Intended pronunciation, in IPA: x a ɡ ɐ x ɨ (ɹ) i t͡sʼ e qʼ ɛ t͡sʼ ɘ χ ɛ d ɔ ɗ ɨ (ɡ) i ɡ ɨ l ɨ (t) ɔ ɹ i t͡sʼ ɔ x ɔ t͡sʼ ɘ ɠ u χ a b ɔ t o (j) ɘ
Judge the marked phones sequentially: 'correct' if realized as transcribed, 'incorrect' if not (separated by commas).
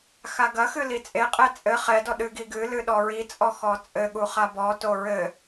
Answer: incorrect, correct, incorrect, incorrect